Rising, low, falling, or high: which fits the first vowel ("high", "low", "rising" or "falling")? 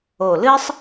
low